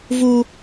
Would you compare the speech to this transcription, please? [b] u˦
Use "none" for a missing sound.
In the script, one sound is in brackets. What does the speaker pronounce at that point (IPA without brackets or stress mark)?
v